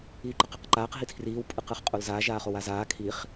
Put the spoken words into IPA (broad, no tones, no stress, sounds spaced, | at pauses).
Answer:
iː ǃ ə q ə q ǃ aː q ɦ i tʰ r iː w pʼ ɯ q ɯ χ qʼ o l z aː ʒ aː χ o w a z aː kʰ i χ